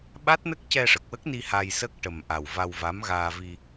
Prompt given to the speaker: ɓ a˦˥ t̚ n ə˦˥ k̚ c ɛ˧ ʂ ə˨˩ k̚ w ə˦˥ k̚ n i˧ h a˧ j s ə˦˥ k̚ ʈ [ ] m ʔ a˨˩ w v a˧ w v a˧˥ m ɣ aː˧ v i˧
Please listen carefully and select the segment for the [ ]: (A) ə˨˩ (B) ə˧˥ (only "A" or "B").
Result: A